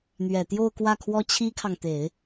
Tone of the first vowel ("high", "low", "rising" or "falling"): low